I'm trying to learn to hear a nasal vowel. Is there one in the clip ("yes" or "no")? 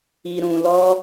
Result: yes